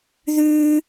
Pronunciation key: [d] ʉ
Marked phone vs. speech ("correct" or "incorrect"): incorrect